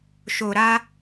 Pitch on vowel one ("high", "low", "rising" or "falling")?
low